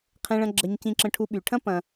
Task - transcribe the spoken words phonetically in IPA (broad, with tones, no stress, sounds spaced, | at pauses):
qʰ ẽ˧ ɭ ɐ̃˧ ɡ͡ǁ ə˧ ɲ c ĩ˧ ǁ ə̃˧ ʈʰ u˧ ɓ y˨ ʈʰ ɐ̃˦ p ɐ̃˧